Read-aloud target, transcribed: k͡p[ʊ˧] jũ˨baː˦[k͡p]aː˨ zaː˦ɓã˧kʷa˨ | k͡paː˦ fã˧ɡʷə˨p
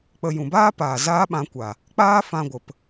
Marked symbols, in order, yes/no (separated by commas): no, no